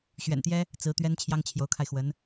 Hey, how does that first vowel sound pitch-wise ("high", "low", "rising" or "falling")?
low